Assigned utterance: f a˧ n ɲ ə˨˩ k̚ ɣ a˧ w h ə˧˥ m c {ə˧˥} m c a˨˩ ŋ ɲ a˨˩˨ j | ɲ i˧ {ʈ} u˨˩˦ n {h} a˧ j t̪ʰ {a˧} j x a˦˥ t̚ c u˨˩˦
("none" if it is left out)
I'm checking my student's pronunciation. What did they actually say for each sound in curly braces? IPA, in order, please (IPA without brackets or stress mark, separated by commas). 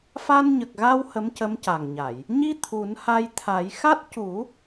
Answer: ə˧˥, t̪ʰ, h, a˨˩˦